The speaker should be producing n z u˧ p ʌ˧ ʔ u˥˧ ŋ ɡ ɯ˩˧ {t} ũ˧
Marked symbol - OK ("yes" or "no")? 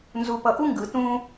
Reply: yes